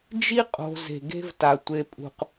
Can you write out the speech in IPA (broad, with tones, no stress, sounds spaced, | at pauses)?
d͡ʒ i˦ qʼ o̤˨ z e̤˨ ɡ e̤˦ v t a˨ tʷ e˨ pʼ ṳ˨ q